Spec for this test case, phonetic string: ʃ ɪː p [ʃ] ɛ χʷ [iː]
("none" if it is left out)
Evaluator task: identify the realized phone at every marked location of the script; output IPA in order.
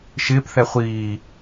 θ, iː

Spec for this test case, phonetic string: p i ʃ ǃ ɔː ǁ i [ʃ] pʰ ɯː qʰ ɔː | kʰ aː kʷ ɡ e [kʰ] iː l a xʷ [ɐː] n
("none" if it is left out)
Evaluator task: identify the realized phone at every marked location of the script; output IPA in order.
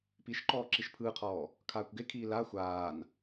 ʃ, kʰ, aː

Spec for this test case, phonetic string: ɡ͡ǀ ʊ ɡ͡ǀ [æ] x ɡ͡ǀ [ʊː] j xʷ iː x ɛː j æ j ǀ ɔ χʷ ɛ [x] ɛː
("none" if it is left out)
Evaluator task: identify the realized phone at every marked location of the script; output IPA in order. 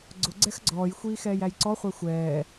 ɛ, ɔː, xʷ

